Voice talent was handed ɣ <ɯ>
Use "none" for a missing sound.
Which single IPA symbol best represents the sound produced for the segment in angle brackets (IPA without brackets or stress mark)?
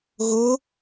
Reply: ʊ